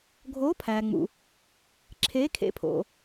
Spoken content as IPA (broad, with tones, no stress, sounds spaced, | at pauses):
ɡʱ oː˧˥ pʰ æː˨ ŋ͡m ṵ˨ | ǁʰ eː˧˥ kʰ ḛ˧˥ pʰ o̰˨